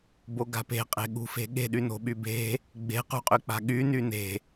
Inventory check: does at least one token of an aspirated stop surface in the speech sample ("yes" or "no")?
no